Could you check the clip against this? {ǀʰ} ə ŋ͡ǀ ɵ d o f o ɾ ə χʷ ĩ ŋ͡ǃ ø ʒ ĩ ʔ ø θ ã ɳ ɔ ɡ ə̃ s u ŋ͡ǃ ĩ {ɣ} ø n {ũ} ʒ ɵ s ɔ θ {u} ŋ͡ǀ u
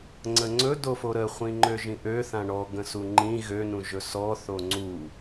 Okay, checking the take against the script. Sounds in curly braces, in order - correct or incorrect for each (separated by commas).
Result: incorrect, correct, correct, incorrect